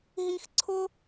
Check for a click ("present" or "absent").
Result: present